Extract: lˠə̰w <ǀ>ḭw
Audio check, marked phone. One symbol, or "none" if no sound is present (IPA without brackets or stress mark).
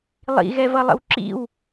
ǁ